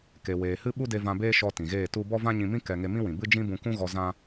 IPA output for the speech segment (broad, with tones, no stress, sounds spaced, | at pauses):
k e˨ w eː˨ h ɨ˦ ɓ u˦ d e˧ v ã˧ b eː˦ ʃ ɔ˧ t ĩ˨ ɣ eː˦˨ t u˦ b ɔ˦ v ã˦ ɲ ĩ˧ m ĩ˦ k ɛ˧ ŋ e˧ m ĩ˦ w ĩ˨ b ɨ˦ d͡ʒ ĩ˦ b ũ˧ k ũ˦ ɣ ɔ˧ z ã˦